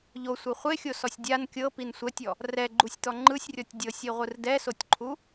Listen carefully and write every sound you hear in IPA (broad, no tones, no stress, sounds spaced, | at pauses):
ʎ o sʷ ɯ χʷ e xʲ o s ɔ sʲ dʲ a n kʲ ɤ p i n sʷ ɛ tʲ ɔ | r ɛ ɡ͡ǃ u sʲ t̪ ɔ ŋ͡ǃ ɯ sʲ rʲ ɔ tʲ dʲ ɤ sʲ i ʁʷ ɯ r d ɛ s o tʲ ǃʰ u